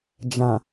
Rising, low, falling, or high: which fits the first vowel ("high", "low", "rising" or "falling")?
low